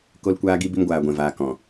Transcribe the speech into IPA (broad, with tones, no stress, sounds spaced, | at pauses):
k o˧ l kʷ aː˧ ɡ i˧ b i˧ m ɡʷ aː˨ ɡʷ ɛ̃˨ v aː˨ k ɔ̃˨